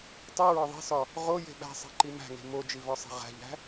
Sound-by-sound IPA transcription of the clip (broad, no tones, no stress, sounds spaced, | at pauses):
tˤ i ɹ ɒ ðˤ e̤ s ɒ | ʁ o j e̤ ɓ æ̤ sˤ e̤ ǃ i m æ̤ ŋ e̤ m o d͡ʒ i v ɒ sˤ e̤ ʁ æ̤ ʎ æ̤